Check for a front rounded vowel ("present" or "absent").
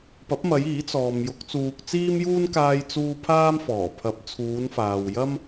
absent